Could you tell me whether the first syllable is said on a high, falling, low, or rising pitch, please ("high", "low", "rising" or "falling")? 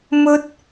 high